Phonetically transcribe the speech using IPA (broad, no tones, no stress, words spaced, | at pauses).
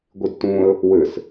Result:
ɡʷidtũə̯ | wɘs